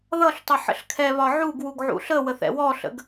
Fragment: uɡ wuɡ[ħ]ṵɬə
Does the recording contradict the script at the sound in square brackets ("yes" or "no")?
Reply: yes